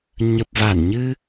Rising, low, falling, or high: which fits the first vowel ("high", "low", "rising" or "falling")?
low